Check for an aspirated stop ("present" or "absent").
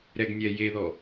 absent